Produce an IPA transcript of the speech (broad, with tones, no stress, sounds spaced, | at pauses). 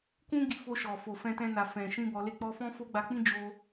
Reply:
k ũ˦ ɡ i˧ f o˧ ʃ ɔ˨ f o˨ f ɛ̃˧ t ɛ̃˧ n a˨ f ɛ̃˨ ʃ ĩ˧ b ɔ˧ l e˦ k͡p ɔ˦ f ɔ̃˦ f o˦ ɡ͡b a˧ k͡p ĩ˦ d͡ʒ o˧